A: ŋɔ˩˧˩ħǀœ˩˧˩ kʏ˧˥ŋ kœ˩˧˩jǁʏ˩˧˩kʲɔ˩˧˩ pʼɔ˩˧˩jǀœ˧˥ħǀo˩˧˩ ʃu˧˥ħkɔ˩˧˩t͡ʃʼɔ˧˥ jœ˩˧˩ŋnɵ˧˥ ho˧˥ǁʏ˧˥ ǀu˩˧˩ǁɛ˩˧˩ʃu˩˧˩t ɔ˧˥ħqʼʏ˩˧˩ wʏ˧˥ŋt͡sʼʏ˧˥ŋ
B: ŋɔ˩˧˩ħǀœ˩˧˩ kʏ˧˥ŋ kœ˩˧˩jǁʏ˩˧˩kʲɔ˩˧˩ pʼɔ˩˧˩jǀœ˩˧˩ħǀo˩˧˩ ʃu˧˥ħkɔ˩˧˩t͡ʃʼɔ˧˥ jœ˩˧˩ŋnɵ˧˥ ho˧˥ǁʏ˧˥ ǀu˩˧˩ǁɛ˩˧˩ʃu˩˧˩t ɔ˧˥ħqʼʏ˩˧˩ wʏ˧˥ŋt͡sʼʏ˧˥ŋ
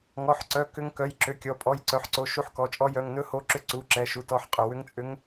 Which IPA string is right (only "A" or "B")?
B